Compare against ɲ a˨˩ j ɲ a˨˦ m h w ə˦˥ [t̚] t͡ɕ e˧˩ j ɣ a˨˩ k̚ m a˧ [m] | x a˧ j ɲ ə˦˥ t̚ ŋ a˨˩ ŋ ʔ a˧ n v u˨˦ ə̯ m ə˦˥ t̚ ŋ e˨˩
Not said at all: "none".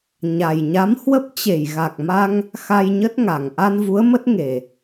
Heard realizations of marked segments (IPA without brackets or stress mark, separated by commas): p̚, ŋ